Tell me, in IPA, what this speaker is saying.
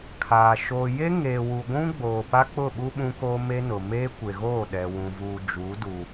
kʰaː˨ ʃoː˨je˦ ŋe˨wu˨ɡʷũ˦ɡ͡boː˨ pa˦k͡pʊ˦˨ɓu˦ ɓũ˦ko˦me˦nʊ˨ meː˦ kʷe˨ɣoː˦˨ɗɛ˨ wũ˨vuː˨d͡ʒuː˨˦du˨

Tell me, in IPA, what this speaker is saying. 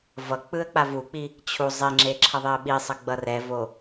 vʌk͡pɯə̯ k͡pavuk͡pi | t͡ɕʰu zˤeŋ͡ǁe ǁʰʌðˤeə̯ɓisˤʌ ɡ͡bʌrɛvo

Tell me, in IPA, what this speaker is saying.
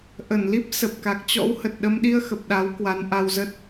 ʔə˧˩nli˦˥p̚sə˨˩p̚ ka˨˩k̚t͡ɕɔ̰˧˥whə˨˩t̚ ɗə˧mɗi˧ə̯ xə˨˩p̚ɗa˨˦w kwa˨˦nʔa˧wzə˦˥t̚

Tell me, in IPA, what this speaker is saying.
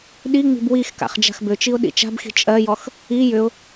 ɗiŋ͡mi̤b wixka̰χ d͡ʒa̤xbʏt͡ʃiʊ̯ ɗḭt͡ʃa̤bxi̤ t͡ʃʼɜjɔx | i jʏʊ̯

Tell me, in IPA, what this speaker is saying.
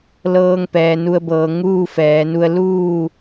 lɤː˧ŋpɛː˩ nu˧ə̯bɤː˩˧ ŋuː˥˨fɛː˩˧nu˧ə̯ luː˥˨

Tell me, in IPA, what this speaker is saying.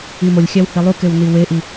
imolʲxʲæw hilˠukew niweʔi

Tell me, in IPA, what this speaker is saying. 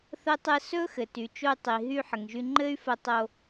θə˥tˤɘ˥ sɵ˥xɘ˩ ty˩t͡ʃo˧y̯tˤi˩ ɦy˧ ħə˩ŋʒy˧ ŋ͡ǃɘ˥y̯fə˧tˤo˧

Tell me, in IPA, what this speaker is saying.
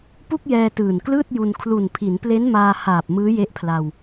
pu˥˩k̚jɛː˧ tɯː˨˩nklɯː˥˩t̚ju˧n kʰlu˨˩npʰi˩˦nple˦˥nmaː˧ haː˨˩p̚ mɯː˦˥je˦˥ʔpʰla˧w

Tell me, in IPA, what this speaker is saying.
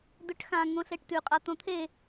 d̪ɵʈxã ŋõɬeʈtʉ qʼat̪õt̪ʰe

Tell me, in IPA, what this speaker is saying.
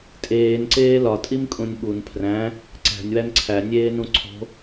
tʼeːnǀeː lɒtʼimkʼũnʲ ɓun pʰræ̃ | ǀæ̤nʲwæn ǀʰænʲeːnũ ǀʰo̤

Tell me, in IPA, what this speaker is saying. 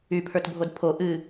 ypʰə˞tbʱod pʰo ʔɨ

